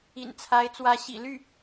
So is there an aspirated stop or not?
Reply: yes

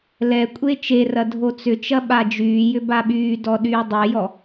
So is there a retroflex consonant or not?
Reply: no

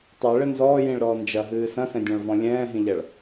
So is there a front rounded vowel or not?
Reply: no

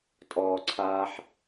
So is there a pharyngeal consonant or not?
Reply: yes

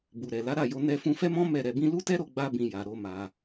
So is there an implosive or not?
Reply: no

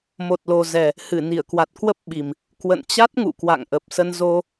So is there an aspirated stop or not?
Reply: no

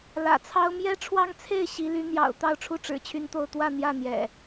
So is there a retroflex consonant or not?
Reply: yes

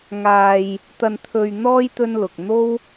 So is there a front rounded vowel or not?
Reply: no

